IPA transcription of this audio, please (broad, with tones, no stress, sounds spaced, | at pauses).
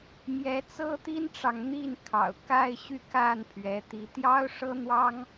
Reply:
m j ɛ˧˥ t͡s ɤ˥ t̪ i˥ n ʈ͡ʂ ɑ˨ ŋ n̪ i˥˩ n kʰ ɑ̰˨˩ ʊ̯ k a˥˧ ɪ̯ ɕ y˥˧ k a˥˩ n pʰ ɥ ɛ˧˥ t̪ i˧˥ t̪ j ɑ˥ ʊ̯ ʂ ɤ˥ n̪ w ɑ˥ ŋ